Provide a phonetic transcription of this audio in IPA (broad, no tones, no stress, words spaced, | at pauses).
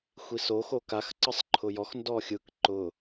xʷiso xokax ǀɯsˤǃʰʊjɔx ndɔxʲɯk ǃʊ